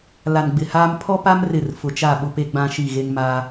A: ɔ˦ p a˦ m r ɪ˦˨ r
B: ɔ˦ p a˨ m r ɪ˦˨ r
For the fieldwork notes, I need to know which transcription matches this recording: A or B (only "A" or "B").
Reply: A